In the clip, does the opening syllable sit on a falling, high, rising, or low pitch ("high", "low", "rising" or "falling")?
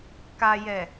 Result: low